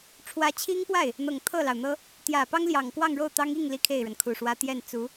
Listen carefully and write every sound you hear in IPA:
ʈ͡ʂʰ w ä˧˥ t͡ɕʰ i˥ ŋ p w a˥˩ ɪ̯ | n̪ ɤ˨˩ ŋ t̪ʰ ɤ˥˩ l ɑ˩ ʊ̯ n̪ ɤ˥ | t̪ j ä˨˩ p ɑ˥ ŋ l j ɑ˨˩ ŋ k w ɑ˥˧ ŋ ɻ o˥˩ ʊ̯ t̪ ɑ˥ ŋ i˥˩ ŋ l i˥ kʰ e˥˩ ɪ̯ ɻ ə˩ n kʰ u˨˩ ʂ w ä˥ t̪ j ɛ˥˩ n t͡s u˧˥

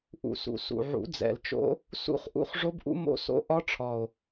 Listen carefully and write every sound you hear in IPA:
ʔ ṵ˨˩ s ṵ˨˩ s ṵ˨˩ ʕ ṵ˨˩˦ d͡z ɛ̰˨˩ l t͡ʃ o̰˦˥ | s ṵ˦˥ χ ʔ ṵ˦˥ χ ʐ o˦˥ b ʔ ṵ˦˥ m o̰˦˥ s o̰˦˥ ʔ ɒ˦˥ ʈ͡ʂʰ ɒ˨˩ o̯

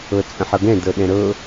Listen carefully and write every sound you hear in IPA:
ɤ t͡sʼ ə̃ ħ ɤ ɡ ɛ̃ d ɤ ɗ ɛ̃ ɾ ɤ

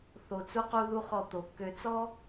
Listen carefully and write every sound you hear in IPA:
θ o˧ t͡s u˥ q u˥ ð u˥ χ ɔ˥˧ t̪ o˧ kː ø˥ t͡s ɔ˥

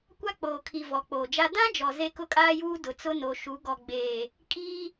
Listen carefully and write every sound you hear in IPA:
kʷ a˦ k͡p oː˨ kʰ i˨ v ɔ˨ k͡p oː˨ d͡ʒ a˦ d ã˦ d͡ʒ ɔ˨ z e˦ k ʊ˦ kʼ aː˦ j uː˦ d ʊ˨ t͡s ʊ˦ n o˨ ʃ u˨˦ ɡ ɔ˨ ɡ͡b eː˨ | kʼ iː˦

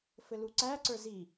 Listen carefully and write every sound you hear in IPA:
f ɘ l u ǀ æ ǀ ə˞ z i

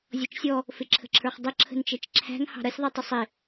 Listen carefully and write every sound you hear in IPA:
zʲ ɔ t͡ʃ sʲ ɔ | f ɪ ǁʰ ə̤ ǁʰ ə˞ χ dˤ ə ǁʰ ə̤ n t͡ʃ ɛ t͡ʃ ǁʰ æ̤ ŋ h ɑ̤ ɾ ʌ sʲ ðˤ i tˤ ɪ sˤ ɪ

